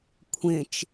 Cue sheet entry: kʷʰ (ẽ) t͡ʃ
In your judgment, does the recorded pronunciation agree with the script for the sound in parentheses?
yes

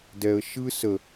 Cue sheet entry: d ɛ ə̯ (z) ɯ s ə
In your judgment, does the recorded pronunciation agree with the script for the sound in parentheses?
no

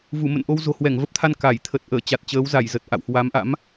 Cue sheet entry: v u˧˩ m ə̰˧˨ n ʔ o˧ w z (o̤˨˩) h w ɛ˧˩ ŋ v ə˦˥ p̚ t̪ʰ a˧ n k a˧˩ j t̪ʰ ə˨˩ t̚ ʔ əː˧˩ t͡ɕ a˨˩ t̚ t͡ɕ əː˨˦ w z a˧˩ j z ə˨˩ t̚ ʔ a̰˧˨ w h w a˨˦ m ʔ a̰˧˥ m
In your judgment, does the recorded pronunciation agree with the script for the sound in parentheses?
yes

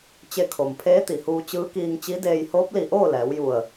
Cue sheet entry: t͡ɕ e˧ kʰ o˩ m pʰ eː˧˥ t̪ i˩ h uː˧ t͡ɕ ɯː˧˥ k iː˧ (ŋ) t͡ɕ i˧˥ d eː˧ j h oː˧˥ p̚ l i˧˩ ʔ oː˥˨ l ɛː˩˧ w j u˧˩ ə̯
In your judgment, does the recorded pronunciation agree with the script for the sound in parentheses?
yes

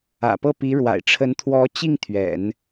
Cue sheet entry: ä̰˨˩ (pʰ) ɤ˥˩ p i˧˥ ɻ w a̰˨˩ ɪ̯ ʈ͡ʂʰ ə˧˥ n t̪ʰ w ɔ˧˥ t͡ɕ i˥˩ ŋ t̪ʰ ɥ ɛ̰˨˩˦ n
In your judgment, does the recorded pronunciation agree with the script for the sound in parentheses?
no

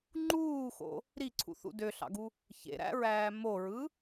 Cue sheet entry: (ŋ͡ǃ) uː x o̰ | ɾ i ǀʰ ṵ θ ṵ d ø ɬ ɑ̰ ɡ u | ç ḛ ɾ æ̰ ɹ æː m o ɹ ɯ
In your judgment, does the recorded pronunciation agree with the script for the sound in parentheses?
yes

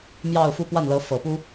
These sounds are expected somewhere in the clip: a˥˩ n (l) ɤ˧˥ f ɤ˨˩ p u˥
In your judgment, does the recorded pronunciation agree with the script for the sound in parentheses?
yes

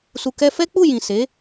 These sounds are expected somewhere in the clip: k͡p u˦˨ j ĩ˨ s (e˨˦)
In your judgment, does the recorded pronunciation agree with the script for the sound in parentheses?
yes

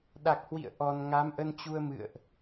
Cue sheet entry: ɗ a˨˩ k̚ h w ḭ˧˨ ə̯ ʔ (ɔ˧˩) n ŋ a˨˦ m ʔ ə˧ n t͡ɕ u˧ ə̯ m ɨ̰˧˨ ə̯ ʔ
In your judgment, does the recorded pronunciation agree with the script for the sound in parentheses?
no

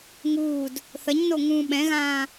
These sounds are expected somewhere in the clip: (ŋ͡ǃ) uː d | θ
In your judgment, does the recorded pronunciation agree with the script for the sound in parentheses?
no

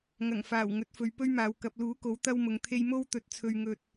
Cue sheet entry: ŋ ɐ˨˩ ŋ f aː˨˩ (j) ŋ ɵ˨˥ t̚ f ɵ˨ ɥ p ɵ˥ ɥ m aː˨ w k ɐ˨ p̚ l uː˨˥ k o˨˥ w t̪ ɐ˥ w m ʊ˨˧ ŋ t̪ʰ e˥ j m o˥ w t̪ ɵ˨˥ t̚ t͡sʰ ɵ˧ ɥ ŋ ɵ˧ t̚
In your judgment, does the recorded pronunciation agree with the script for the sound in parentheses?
no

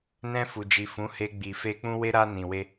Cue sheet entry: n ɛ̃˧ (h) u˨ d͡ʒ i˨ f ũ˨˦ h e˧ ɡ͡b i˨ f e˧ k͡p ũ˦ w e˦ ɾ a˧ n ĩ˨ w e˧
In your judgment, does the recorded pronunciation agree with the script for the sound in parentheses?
no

